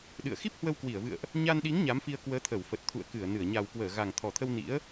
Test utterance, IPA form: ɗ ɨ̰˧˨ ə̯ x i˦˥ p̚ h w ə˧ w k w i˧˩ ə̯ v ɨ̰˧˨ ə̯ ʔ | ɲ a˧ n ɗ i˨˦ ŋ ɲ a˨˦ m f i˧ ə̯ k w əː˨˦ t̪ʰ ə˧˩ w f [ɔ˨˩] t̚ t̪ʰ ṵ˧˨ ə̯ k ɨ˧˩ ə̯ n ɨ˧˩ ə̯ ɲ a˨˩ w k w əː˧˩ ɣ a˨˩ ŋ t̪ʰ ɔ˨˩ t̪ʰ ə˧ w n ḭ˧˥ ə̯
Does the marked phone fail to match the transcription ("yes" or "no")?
yes